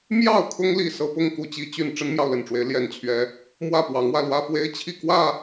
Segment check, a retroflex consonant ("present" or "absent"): present